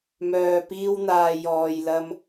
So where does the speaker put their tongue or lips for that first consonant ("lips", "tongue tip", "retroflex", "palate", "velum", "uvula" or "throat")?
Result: lips